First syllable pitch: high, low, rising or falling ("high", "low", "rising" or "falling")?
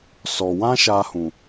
low